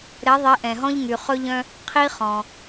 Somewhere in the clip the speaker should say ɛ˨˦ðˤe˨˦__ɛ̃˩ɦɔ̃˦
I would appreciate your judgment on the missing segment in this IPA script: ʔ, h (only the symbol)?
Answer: ʔ